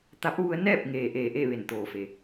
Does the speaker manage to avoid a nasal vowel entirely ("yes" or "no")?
yes